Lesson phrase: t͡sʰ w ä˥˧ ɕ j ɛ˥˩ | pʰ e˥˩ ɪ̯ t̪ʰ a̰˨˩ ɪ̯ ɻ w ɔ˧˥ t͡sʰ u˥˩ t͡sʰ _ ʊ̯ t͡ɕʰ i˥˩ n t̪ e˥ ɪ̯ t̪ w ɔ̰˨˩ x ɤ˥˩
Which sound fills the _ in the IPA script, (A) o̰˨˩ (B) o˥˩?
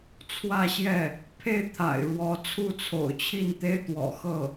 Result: A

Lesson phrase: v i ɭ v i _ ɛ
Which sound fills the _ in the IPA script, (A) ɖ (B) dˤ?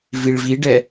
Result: A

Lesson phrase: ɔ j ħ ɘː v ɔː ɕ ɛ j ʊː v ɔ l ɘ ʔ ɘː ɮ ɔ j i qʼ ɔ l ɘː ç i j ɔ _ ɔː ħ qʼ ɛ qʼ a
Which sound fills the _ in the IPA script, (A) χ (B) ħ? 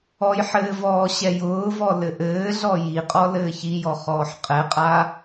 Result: A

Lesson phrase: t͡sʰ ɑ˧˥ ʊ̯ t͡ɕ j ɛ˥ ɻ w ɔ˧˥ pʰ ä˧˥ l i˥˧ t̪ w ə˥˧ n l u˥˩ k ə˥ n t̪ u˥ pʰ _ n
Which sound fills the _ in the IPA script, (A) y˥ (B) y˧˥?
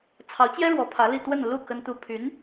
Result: B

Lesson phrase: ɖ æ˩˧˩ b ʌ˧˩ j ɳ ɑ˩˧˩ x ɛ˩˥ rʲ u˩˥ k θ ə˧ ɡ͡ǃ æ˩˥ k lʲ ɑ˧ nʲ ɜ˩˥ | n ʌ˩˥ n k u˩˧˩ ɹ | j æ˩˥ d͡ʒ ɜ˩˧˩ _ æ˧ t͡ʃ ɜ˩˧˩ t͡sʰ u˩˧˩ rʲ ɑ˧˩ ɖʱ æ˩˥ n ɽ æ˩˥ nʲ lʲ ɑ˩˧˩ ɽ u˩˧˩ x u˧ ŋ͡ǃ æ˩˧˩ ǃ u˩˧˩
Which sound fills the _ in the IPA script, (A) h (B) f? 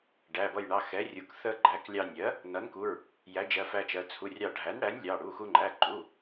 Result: B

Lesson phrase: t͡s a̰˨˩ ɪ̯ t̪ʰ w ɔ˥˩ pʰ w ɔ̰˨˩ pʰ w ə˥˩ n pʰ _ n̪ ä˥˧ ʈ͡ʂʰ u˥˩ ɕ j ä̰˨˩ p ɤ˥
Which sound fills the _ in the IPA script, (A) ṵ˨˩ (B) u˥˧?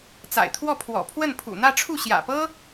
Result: A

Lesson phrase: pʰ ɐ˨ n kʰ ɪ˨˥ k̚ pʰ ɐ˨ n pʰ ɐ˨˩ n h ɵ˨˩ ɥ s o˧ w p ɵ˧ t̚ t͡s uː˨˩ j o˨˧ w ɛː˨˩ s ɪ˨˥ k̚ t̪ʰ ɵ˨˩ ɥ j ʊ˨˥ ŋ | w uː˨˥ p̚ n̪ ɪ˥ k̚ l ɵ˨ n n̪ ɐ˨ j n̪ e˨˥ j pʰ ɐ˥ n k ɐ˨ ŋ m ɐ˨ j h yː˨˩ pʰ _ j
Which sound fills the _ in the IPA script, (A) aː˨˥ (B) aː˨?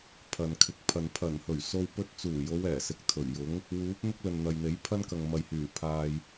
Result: B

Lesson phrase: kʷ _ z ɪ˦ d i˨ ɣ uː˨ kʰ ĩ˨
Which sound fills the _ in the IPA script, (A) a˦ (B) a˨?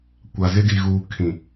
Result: B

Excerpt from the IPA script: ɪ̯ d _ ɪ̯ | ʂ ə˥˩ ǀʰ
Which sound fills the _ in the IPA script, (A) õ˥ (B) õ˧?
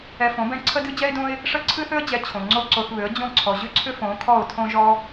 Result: A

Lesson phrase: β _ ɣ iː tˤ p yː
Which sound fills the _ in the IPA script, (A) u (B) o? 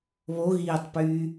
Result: B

